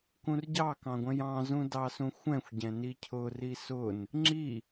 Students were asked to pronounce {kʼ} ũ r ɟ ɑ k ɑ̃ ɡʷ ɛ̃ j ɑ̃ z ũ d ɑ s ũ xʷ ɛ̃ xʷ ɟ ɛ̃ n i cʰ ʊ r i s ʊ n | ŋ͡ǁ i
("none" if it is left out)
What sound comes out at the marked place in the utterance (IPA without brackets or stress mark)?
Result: k